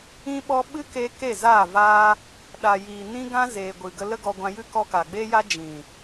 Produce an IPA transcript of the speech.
ĩ˦ɓɔ˦ ɓɨ˦ke˧ ke˦˨za˦˨vaː˦ | ɗa˨jiː˨nĩ˦ ɡã˦zeː˨ ɡʷɨ˨ɡə˧ lə˦ɡɔ˧ɡʷã˧jɨ˦ kɔ˧ka˨ɡ͡beː˦ja˦ d͡ʒĩ˨

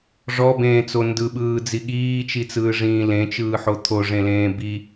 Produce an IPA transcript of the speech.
ʐɔbẽːt͡so ndɯɓɯːd͡zi ɠiːt͡ʃit͡sɯːʐĩː lẽt͡ʃɯːħo t̪ʰoʐẽlẽː bi

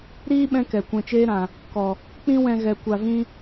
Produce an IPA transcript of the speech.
ɾiː˦ ɓɛ̃˧ kɛ˨kʷɛ̃˧t͡ʃeː˦ɾã˨ | kɔ˨ | k͡pĩ˦wɛ̃˧ ɣɛ˨ kʷa˧vĩ˦

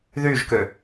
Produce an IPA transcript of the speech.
ðyʒkø

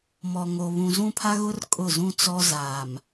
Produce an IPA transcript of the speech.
mɔ˨ŋo˨ βũ˨zũ˦pʰa˦ɣʊ˦r kʼʊ˦˨zũ˦ t͡sɔ˦zaː˨m

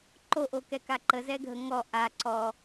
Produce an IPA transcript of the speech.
ǃoʔokɛka ǃəzɛɡʱə ŋɔ ʔa ǀɔ

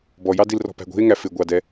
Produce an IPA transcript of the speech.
bɔjɑdil rɔ̤pæ̤ɡʷi̤e̯ŋæ fɪɡʷɑdɛ

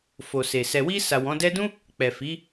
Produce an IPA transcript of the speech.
fo˨se˨ sɛ˨wi˧sa˨ wɔ̃˨˦dɛ˦ dũ˦ | k͡pɛ˨ fi˨˦

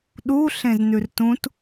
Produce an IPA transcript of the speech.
ɗu ɬẽznʉrtũt

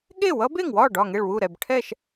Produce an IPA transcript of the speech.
ɠe˥˩wʌ˦˥be˥˩ŋwɒ˥˩ ɖɒ˥˩ŋe˥˩ɭwu˥˩ɾɛ˥˩b ʈʰɛ˥˩ʃ

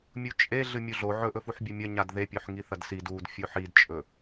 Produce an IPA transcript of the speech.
mʲut͡ʃʼe ɮɨmʲuɮo ʕɵʔɵ fuħbʲumʲɐ ɲadðepʲoħ ŋiθɐdsid ud fʲoħidt͡ʃʼɵ

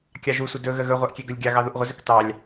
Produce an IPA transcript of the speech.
kʲɑʒusʷə dɵɣə ɣɵʁʷaʔ kʲɛɡɵlʲɡʲɑɣɑ ðuʔʁʷəzɵk tɑlʲ

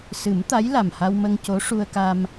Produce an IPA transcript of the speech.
sɨ˨˩˦m t̪a˧˥j la˨˩mha˧wmə˧ŋ co˧˥ʂu˧ə̯ka˧m

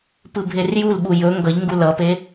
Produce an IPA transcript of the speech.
pɯbʱerjulɓu jɵ ŋɡʌʎŋɡu lʌpe

